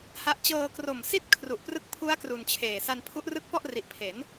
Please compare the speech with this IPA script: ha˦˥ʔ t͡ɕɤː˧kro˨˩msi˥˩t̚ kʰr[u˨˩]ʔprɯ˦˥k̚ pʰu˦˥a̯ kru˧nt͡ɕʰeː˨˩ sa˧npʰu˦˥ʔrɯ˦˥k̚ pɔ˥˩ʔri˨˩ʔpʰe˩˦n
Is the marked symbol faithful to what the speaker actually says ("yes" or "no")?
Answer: yes